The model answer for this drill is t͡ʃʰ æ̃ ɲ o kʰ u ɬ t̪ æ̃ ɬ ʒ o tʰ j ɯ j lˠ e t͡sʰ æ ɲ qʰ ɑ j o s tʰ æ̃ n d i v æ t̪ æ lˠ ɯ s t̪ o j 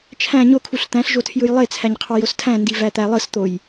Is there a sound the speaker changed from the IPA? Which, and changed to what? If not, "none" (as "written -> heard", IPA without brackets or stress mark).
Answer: none